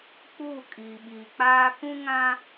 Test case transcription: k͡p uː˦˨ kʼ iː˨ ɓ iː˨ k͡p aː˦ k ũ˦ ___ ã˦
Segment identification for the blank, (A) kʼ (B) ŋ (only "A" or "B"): B